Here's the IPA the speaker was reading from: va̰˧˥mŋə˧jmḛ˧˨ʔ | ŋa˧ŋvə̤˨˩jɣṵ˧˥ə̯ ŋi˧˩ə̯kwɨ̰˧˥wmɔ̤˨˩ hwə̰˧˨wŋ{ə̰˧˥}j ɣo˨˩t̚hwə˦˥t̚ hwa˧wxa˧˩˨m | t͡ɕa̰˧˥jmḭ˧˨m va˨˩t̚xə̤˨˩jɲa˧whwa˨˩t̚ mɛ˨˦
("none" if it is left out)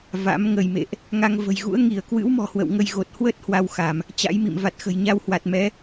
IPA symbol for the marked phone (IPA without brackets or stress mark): ə˧